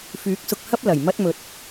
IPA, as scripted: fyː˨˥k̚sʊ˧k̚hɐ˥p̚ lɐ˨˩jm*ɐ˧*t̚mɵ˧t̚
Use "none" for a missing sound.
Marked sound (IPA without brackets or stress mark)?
ɐ˥